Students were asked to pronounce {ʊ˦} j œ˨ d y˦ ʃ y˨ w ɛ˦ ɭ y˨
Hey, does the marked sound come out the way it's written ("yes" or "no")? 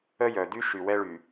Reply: no